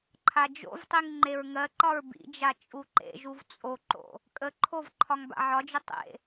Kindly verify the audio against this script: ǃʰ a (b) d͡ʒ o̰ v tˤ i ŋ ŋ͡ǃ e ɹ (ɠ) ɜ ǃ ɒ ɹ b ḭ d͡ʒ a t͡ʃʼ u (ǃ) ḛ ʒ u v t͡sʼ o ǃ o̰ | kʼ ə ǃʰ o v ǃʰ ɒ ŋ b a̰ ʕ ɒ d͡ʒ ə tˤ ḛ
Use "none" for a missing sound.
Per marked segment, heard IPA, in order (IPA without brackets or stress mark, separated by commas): none, ŋ, ǃ